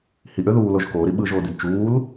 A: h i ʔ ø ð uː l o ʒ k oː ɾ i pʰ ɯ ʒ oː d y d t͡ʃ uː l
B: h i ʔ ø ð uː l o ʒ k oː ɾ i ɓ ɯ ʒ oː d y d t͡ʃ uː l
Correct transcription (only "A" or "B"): B